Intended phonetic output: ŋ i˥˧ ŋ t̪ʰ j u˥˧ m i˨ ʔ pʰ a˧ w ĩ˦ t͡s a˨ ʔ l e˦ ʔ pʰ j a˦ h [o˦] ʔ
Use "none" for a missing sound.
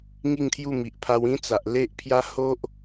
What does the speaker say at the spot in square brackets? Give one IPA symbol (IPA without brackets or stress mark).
o˦